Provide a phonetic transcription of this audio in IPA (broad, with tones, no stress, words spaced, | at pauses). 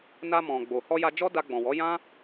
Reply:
na˧mɔ̃˨ɡ͡bo˨ hɔ˧ja˧ d͡ʒɔ˦da˧ɡ͡bɔ̃˨wɔ˨˦ jã˦